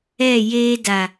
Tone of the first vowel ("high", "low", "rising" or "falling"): falling